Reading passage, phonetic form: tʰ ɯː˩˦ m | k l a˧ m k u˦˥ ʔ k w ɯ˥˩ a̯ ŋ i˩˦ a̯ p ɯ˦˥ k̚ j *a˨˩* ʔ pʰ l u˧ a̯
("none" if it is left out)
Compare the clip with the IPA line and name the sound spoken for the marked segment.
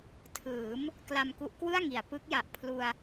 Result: a˨˩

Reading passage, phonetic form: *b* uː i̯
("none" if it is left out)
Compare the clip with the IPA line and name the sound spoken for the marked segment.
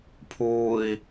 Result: pʰ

